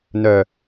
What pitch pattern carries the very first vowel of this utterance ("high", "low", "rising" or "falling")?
low